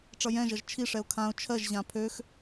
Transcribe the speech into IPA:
ʈ͡ʂ ʌ j ɛ̃ ʒ ʌ ʒ t͡ʃʰ i ʂ ɛ ʊ̯ kʰ ã ʊ̯ t͡ʃʰ ɜ ʒ ʑ ã pʰ ø x

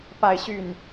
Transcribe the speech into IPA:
p a˥˧ ɪ̯ ɕ y˥˩ n

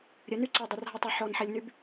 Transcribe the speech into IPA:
ɾʲ ɘ n y ǀ ɛ dˤ o r ɦ ɐ tˤ ə ħ ɔ n ħ ɛ lʲ n y b

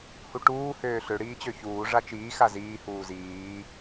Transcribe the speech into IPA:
h u ʈ uː h øː ɬ ø ɽ iː t͡ɕ ø ç uː ʐ a t͡ʃ iː x a z iː h uː z iː

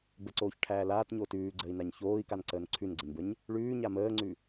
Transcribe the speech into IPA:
b ə ǀ oː ç ʈʰ æː l aː t ɲ oː t ʉː ɡ͡ǀ əː i̯ n a ɲ ç oː i̯ k a n ǀ əː n ǀʰ ʉ n ɡ͡ǀ ə ɲ b ə ɲ | ɭ ʉː ɲ a m əː ŋ͡ǀ ʉ

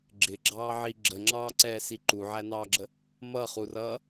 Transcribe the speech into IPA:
ɡ͡ǁ ɪ ɡ͡ǁ ɑː ʕ i ɡ͡ǁ ə ŋ͡ǁ ɑː ǀ ɛː s i ǃ u ʕ æ n ɑː ɡ͡ǁ ə | m ʌ χ u r ʌː

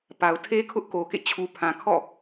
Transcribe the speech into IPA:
p a˨ ʊ̯ tʰ e˦ kʰ ʊ˦ ʔ k o˨ k ḛ˦˨ t͡ɕʰ u˨ pʰ ã˨ kʰ ɔ̰˦˨

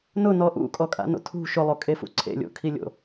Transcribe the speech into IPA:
n ʊ n ɔ ʔ ṵ kʼ ɔ kʼ a̰ n o̰ tʰ ṳ ʃ ʊ lˠ o kʼ e f ṵ ǀʰ ḛ lʲ o̰ kʰ i lʲ o̰

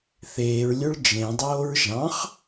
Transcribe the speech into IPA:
θ eː ɹ lʲ ø ɭ d͡ʒ ẽ dˤ oː ɹ ʒ ɑ̃ χ

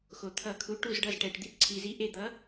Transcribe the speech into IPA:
x o˩ t̪ʰ ʌ˨˩˦ kʰ u˩˥ ʈ u˧˩ z ɖ ʌ˧˩ z ʈ ɛ˩ ʈ d̪ i˧˩ t ǀʰ i˩ z i˩˥ ʔ e˧˩ d̪ ʌ˩˥

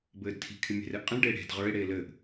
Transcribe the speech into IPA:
b ɘː d tʰ i̤ kʰ ɪ mʲ e̤ r ɛ ʔ qʼ ĩ ɭ ɖ eː ɽ e̤ d ʁ ə˞ e̯ ɽ eː l ɘː ʔ

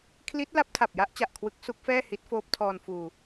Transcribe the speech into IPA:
kʰ l i˦˥ t̚ l a˦˥ p̚ tʰ a˨˩ p̚ j a˦˥ ʔ t͡ɕ a˨˩ ʔ kʰ w ɯ˦˥ k̚ s u˦˥ k̚ f ɛː˥˩ h i˦˥ t̚ f oː˦˥ p̚ tʰ ɔː˧ n f uː˧

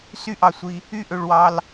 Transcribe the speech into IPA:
s y˧ ʔ ɑ˩ sʷ i˩ | y˧ ʔ ø˩ ɭ w ɑ˩ l

